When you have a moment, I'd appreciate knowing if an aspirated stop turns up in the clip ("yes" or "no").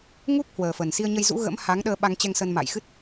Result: no